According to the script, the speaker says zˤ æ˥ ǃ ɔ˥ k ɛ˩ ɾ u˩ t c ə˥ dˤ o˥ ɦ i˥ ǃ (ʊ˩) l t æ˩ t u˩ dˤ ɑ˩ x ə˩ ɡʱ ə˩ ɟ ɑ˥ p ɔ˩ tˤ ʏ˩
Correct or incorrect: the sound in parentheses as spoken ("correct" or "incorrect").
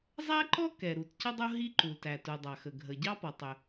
incorrect